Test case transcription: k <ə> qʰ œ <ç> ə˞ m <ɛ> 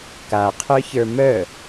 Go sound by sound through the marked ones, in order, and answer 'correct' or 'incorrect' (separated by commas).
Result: incorrect, correct, incorrect